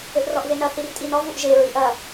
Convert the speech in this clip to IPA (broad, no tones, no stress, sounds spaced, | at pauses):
ɘ ʔ r ɔ ʔ v e n ɐ θ i r tʼ i n ɔ v u ʔ ʒ e ɹ i ʔ ɐ